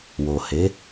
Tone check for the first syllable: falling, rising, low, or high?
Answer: low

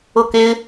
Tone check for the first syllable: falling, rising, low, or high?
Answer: falling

